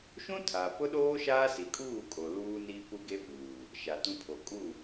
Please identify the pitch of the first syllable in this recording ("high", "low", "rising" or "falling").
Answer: high